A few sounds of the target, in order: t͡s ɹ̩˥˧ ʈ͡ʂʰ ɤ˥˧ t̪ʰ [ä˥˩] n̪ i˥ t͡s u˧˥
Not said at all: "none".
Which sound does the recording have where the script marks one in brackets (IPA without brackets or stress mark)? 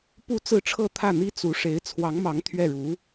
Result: ä˥˩